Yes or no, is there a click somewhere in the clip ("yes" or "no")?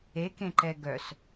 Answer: yes